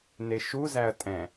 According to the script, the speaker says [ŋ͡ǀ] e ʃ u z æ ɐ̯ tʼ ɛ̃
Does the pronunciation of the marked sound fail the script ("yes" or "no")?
yes